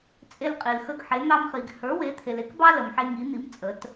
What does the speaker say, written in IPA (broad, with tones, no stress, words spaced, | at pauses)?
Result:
t͡sʼe˦lqʼi˨lxə˦ɡħe˨˥ n̪ɑ˦mχi˨ɡ hə˞˨˥ we˨˥t̪ʰe˨l e˦kbɑ˦ lə˨mħe˦ŋi˨˥n̪i˨˥m t͡sʼə˨˥t